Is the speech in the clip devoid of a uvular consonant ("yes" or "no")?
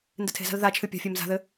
yes